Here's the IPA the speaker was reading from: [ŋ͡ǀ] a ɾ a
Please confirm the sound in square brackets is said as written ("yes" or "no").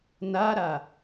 no